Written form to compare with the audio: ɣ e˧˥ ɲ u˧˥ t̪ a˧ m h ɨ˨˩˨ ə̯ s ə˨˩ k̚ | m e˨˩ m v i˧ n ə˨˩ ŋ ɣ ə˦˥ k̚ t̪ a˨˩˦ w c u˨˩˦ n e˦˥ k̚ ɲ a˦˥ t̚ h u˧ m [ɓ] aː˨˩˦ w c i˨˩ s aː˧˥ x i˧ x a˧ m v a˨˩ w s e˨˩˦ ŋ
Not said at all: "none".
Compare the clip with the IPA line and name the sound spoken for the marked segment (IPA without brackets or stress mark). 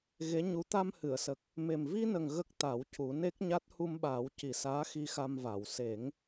ɓ